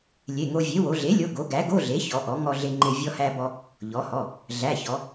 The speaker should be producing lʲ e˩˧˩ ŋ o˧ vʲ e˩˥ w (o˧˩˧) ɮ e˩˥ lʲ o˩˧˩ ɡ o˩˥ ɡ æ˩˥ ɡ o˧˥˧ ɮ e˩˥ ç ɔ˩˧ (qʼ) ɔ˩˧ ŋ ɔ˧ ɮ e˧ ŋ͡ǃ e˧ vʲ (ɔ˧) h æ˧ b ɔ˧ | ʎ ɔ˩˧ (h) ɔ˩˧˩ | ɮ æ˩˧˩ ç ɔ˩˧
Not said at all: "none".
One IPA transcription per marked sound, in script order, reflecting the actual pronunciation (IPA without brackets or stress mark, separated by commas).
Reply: o˩˧, ʔ, ɔ˧, h